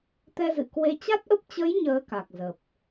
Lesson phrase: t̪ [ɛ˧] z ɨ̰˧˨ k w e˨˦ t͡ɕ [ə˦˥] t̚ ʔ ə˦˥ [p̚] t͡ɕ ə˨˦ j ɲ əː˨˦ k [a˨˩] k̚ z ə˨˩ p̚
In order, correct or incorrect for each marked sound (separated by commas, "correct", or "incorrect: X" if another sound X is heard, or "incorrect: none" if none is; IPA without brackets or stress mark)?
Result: correct, incorrect: a˦˥, correct, correct